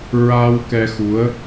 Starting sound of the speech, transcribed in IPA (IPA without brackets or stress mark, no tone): ɹ